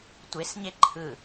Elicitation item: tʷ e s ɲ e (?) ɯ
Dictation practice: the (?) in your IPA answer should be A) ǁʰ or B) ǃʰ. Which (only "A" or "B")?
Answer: B